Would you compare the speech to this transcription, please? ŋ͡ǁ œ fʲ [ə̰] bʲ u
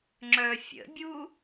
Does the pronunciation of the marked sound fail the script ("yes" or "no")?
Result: no